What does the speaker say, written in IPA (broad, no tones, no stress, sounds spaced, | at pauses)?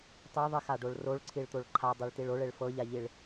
tˤ i ðˤ i x a ɖ o ɭ r o ɭ ǀʰ i ɭ t̪ o ɭ ǃʰ a dˤ e ɭ t i ɭ o ɭ e ɭ f ɤ ʎ a ʎ i ɭ